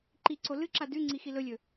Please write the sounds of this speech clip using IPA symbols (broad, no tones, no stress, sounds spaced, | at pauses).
ǃ i ǀ o l ɨ ǁ a d ʉ ŋ͡ǀ i x i l ɵ lʲ ɵ